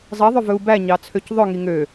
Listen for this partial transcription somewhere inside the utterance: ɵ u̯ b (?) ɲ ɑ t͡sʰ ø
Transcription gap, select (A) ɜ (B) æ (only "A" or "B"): B